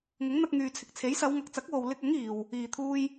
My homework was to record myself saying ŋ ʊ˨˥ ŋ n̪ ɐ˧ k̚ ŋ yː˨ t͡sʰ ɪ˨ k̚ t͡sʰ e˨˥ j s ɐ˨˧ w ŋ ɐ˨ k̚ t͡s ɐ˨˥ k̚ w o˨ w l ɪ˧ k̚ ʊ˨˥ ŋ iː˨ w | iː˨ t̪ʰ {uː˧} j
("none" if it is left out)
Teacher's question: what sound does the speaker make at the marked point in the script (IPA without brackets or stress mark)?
uː˧